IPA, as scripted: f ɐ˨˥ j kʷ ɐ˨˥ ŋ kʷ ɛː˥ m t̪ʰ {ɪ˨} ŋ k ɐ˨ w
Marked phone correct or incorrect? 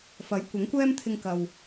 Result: incorrect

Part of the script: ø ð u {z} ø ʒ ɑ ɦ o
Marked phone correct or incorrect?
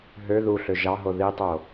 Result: incorrect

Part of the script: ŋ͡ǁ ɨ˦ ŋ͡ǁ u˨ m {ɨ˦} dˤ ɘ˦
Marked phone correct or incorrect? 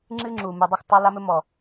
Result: incorrect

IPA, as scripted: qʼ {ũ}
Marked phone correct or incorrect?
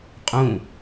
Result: correct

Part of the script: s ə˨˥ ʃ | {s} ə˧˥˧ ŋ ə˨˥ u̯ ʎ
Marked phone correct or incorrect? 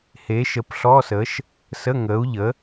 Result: correct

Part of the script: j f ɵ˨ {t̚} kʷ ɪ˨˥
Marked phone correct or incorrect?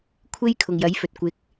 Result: correct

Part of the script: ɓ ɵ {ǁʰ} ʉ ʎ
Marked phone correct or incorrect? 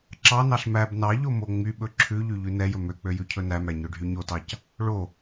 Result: correct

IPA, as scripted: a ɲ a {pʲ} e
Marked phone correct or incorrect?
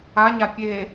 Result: correct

